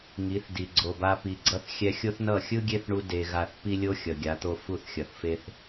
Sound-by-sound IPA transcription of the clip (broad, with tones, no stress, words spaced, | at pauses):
ŋi˨˦θdi˨ ɡ͡ǀo˨ba˧ pi˨ɡ͡ǀʌ˦θ xʲɛ˧xʲo˦θnʌ˦˨ xʲɯ˦ɡʲe˦θɳu˧ de˧ɣa˦˨θ pi˦lʲo˦ xʲʌ˨ɡʲa˨˦t̪o˦ fu˦˨θxʲʌ˨θfe˦θ